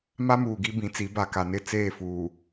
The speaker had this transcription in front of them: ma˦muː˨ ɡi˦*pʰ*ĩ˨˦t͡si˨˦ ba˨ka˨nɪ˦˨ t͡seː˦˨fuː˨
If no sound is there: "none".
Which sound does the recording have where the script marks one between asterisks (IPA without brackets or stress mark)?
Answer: b